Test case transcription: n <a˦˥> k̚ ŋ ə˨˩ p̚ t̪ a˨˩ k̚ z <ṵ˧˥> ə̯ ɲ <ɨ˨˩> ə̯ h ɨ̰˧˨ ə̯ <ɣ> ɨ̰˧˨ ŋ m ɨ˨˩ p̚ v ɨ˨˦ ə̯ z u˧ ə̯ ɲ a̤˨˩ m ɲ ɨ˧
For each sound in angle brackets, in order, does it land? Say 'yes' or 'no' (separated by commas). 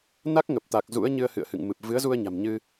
yes, yes, no, no